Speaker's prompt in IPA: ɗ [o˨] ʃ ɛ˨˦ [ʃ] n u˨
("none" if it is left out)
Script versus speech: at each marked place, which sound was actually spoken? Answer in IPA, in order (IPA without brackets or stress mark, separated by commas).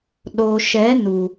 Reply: o˨, none